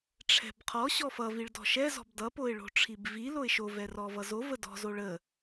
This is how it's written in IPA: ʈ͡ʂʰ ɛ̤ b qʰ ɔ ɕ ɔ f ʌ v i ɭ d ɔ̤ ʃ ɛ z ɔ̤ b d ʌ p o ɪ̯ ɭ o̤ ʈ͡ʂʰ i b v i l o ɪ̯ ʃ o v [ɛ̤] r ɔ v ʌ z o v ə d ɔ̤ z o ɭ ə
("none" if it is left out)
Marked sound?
ɛ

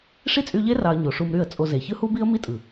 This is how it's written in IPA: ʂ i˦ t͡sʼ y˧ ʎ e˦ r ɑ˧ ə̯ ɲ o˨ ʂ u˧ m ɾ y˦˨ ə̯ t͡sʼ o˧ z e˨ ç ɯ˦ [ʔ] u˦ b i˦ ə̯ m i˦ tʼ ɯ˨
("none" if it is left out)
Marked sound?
h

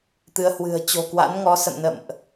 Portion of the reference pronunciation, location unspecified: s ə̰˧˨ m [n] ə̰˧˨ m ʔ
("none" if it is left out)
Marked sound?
n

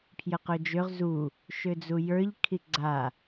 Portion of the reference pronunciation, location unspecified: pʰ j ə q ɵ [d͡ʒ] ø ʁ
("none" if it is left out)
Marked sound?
d͡ʒ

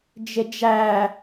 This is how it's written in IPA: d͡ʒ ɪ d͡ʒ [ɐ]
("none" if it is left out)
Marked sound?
æ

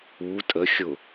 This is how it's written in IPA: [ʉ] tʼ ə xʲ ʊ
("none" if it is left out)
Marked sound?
u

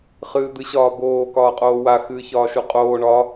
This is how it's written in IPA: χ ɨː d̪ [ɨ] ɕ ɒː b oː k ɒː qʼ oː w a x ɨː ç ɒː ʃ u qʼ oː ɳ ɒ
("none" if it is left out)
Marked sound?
ɨ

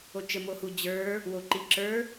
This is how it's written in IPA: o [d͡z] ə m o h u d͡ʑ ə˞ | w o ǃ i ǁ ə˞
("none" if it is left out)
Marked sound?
t͡ʃ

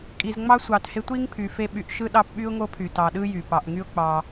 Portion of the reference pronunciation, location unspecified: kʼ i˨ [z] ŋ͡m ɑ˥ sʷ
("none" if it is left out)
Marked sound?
z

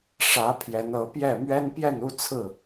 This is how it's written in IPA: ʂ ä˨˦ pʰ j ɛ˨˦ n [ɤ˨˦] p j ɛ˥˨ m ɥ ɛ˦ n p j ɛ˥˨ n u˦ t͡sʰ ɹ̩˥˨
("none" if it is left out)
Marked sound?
ɤ˨˦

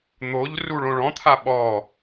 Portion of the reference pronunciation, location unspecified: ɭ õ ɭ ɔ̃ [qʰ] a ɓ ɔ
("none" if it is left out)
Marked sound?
t̪ʰ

